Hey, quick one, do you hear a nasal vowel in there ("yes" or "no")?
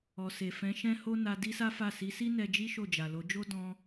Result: yes